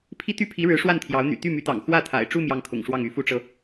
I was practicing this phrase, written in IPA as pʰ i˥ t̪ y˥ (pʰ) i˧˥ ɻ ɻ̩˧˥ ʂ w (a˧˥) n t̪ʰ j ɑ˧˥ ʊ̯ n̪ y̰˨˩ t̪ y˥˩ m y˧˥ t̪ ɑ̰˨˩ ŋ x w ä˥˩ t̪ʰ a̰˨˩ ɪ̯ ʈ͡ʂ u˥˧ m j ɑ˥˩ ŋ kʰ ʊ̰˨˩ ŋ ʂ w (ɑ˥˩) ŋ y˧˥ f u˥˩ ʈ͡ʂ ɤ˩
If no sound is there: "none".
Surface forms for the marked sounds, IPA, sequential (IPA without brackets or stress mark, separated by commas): pʰ, a˥˩, ɑ˥˩